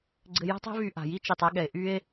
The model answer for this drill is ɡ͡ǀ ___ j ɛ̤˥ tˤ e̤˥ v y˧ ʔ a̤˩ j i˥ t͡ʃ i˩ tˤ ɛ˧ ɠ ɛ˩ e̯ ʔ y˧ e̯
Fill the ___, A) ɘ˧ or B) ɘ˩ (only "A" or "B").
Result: A